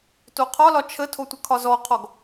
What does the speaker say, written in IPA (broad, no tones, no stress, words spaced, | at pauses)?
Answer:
toqʰɒlɒ t͡ʃʰətʰo tʷəkʰɒzɔqʰɔɡ